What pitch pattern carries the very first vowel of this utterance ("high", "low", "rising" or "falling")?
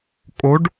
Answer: rising